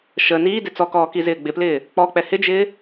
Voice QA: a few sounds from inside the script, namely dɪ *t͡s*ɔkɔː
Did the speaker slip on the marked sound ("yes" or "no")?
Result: no